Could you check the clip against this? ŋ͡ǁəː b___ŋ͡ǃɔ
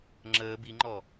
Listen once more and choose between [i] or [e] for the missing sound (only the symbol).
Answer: i